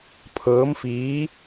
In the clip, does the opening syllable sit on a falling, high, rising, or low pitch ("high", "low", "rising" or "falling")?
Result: rising